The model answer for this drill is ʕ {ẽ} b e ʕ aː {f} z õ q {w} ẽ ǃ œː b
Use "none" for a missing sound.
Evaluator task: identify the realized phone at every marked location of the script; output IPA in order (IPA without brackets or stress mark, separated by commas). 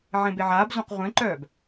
ẽ, b, ʁʷ